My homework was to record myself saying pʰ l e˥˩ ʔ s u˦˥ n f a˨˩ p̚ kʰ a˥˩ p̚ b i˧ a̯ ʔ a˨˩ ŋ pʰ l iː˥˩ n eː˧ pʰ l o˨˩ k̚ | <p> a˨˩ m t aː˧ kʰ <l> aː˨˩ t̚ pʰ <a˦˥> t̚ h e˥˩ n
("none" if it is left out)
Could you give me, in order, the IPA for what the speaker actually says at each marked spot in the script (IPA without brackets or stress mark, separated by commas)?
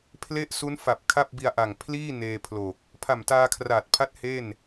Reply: pʰ, r, a˦˥